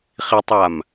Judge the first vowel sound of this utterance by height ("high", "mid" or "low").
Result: high